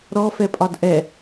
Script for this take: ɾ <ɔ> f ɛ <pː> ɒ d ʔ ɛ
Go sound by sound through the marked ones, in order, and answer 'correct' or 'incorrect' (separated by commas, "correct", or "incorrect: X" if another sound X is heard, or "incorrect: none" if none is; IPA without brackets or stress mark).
correct, incorrect: pʼ